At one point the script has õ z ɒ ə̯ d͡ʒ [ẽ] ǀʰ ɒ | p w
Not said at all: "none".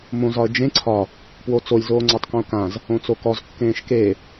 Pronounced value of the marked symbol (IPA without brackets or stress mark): ẽ